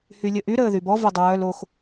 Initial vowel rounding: rounded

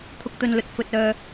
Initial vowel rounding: rounded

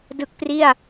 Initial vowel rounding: unrounded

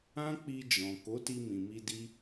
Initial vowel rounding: unrounded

